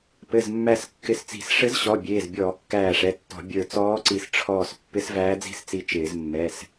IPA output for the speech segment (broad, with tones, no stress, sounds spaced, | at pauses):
p ɘ˩˧˩ z mː æ˧˩ s kː ɪ˧˩ s t͡s i̤˧˩˧ s ʂ ɘ˧˥ z ɕ ɔ˩˧˩ bʲ eː˩˧˩ z bʲ ɔː˧˩˧ kː æː˧˩ ʂ ɛ˩˧˩ tː ɔ̤˧˩˧ bʲ ə˞˧˩ t͡s ɔː˧˥ ǀ i˧˩ s ʈ͡ʂʰ ɔː˧˩ s pː ɪ˧˥ s v æː˧˥ d͡z i̤˥˧ s t͡s i˧˩ t͡ʃ ɪː˧˩˧ z mː ɛ˩˧˩ s